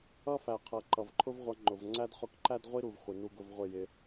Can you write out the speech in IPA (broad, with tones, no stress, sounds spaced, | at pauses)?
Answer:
ʌ˦ f æ˨ qʰ ʌ˨ ǃ ʌ˨ v ǃʰ ʊ˦ v ʁʷ ʌ˧ ŋ͡ǃ ʊ˨ v ŋ͡ǀ æ˦ d χ ʊ˧ k ǃ æ˦ d ʁʷ i˦ ɾ u˨ v χʷ i˨ n u˦ ɡ ʊ˦ v ʁʷ ɪ˦˨ j ɪ˧